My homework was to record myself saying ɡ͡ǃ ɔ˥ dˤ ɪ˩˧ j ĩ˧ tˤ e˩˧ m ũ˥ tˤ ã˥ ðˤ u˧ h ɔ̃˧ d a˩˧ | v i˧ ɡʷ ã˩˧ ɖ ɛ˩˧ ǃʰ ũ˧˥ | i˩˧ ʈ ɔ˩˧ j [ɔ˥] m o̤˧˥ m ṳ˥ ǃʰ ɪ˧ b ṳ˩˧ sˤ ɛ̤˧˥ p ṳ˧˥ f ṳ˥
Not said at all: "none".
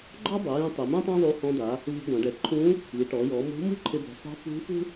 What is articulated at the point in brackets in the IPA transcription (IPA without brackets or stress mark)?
ɔ˩˧